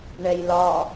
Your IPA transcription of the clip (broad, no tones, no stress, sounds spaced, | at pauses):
ɳ ɛ j l ɒ